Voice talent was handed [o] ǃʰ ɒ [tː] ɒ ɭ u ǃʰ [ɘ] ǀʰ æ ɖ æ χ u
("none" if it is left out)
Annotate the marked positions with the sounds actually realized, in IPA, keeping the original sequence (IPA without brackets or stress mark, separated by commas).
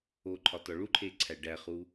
o, t, e